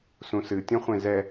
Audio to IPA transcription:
s ũ s ɨ tʲ ɔ̃ χʷ ẽ z ɛ

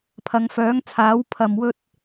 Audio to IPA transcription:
pʰ ɐ˨˧ ŋ f œː˨˥ ŋ t͡sʰ aː˨˥ w pʰ ɐ˨ m w ɵ˥ t̚

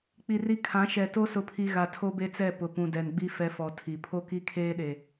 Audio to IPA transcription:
k͡p i˨ r i˦ kʰ ã˨˦ ʃ ɛ˨ t o˦ s ʊ˨ pʰ i˨ ɣ a˨ tʰ o˦ b e˦ t͡s ɛ˦˨ p ʊ˨ p ũ˨ d ɛ˨ n ɡ͡b i˦ f ɛ˦ f ɔ˨ tʰ i˨ pʰ o˦ k i˦ kʰ eː˦ ɗ e˨

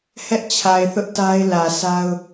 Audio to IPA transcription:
h ɛ˦ ʔ t͡ɕʰ a˨ ɪ̯ θ ʊ˦ ʔ t a˦ ɪ̯ l ä˨ sʰ a˦ ʊ̯

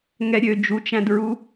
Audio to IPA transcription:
ŋ ɛ ɾʲ ø d͡ʒ u t͡ʃ æ̃ d ɹ u

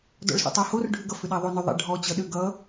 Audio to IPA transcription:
d ɔ̰ ɭ s o̰ tˤ a h o r ɖʱ ʏ ɡ ʌ f ʏ ɗ a ðˤ o n ʏ ðˤ ɛ̰ ɖʱ ɔ t͡ɕ ʌ ɗ ʏ ɡ ʌ

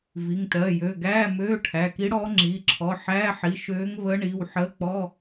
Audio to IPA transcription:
v i˩˧˩ ŋ t ɜ˩˧˩ j ø˩˧˩ ɡ æː˧˥˧ m øː˧˥˧ ʈʰ æ˩˧˩ k i˧˥ ɽ ɔː˧˥ ŋ͡ǁ iː˩˧˩ ǁʰ ɔ˩˧˩ ħ æː˧˥˧ ħ i˩˧˩ ʃ øː˧˥ ŋ v əː˧˥ ɳ iː˩˧˩ w ħ əː˧˥˧ k͡p ɔ˧˥˧

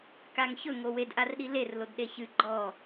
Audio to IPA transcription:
k a ŋ ç ɵ ŋ o w e d ʔ a r ɗ i l e r l o d ɗ e ç ɨ ɡ͡ǃ ɔ

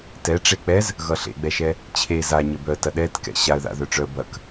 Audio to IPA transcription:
t ɛ ʈ͡ʂ e k͡p ɛ z | ɣ ʌ ɬ ḛ ɡ͡b ɛ ʃ ɛ | t͡ɕʰ e z a ɲ ə b œ ə̯ t ɐ ɗ ɛ t k ɛ̰ ɕ a ə̯ ð a̰ ð œ ʈ͡ʂ œ ə̯ b ɐ k

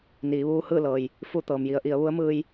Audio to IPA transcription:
n iː˩˧ ʋ uː˧˥ h ɯː˥˨ l ɤː˩ j | f u˥˨ t̪ ɤː˩ m j i˧˥ ə̯ ʔ i˩˧ ə̯ ʋ u˧˥ ə̯ m ɯː˧ j

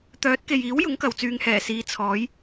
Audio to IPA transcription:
t̪ œː˨˥ t̚ k e˨ j iː˨˥ w j ʊ˨˥ ŋ k ɐ˨ w t͡s yː˨ ŋ h ɛː˨˩ s iː˨˧ t͡sʰ ɔː˨˧ j

